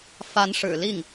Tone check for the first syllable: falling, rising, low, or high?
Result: rising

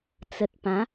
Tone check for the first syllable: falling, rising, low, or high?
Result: low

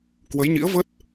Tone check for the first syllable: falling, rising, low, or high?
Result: rising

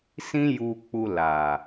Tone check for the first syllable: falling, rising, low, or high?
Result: high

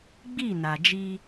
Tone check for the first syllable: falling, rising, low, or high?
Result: falling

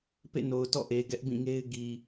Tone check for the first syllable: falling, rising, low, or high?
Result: falling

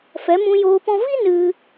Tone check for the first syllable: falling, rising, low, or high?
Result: rising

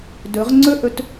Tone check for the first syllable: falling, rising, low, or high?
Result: rising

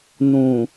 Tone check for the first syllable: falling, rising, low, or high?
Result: low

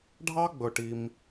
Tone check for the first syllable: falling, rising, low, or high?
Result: high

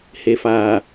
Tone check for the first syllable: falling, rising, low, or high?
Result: low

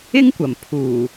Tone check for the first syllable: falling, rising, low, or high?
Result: high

